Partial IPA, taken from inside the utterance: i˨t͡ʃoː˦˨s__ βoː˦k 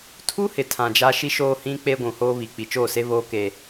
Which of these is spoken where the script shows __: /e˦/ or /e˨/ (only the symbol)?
e˦